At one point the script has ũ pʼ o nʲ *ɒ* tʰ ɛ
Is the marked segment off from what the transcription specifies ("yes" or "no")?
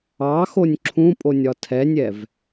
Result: no